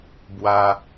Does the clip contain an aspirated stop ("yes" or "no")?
no